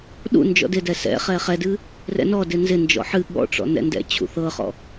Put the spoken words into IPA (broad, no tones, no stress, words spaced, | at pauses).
ɗṵ nd͡ʒɔ̰dɪdɛ sɛ̰ χɛχɛdɨ | rɛ̰nɔdɪ nzɪnd͡ʒɔ̰ ħɨ ɠɔ̰ʈ͡ʂɔ̰ nɛ̰ndɛ̰t͡ɕʰṵ θɤχɔ̰